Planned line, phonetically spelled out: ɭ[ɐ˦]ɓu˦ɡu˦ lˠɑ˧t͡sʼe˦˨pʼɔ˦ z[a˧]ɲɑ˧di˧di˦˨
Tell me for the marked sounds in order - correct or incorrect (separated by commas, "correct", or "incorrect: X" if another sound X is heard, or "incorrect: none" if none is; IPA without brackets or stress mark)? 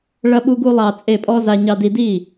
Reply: correct, correct